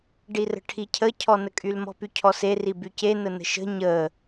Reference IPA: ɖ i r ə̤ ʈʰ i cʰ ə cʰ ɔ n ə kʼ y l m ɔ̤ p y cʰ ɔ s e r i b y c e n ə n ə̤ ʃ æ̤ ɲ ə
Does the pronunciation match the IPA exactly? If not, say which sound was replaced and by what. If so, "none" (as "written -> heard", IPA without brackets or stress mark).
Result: æ̤ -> ə̤